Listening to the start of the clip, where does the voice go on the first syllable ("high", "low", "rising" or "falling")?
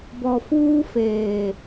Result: low